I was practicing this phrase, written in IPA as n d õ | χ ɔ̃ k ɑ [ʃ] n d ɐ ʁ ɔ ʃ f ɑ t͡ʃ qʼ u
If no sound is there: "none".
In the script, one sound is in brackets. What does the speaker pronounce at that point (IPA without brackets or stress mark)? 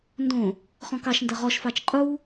ʃ